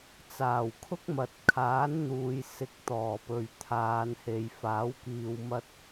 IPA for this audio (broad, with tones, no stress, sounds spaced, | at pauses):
t͡s aː˨˩ w kʰ ʊ˥ k̚ m ɐ˨ t̚ kʰ aː˨˥ n n̪ uː˨ j s ɪ˨ k̚ t̪ ɔː˨˩ p ɵ˨ ɥ t̪ʰ aː˨˧ n h e˨ j f aː˨˥ w k iː˧ w m ɐ˧ t̚